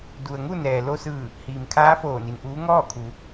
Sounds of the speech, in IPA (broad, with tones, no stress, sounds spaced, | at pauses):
d u˩ ə̯ ŋ u˥˨ n ɛː˩ l o˧ s ɯː˧˩ | h iː˩ m kʰ aː˧˥ f oː˧˩ n i˩ n ʔ uː˧˥ ŋ ɔː˥˨ kʰ u˩˧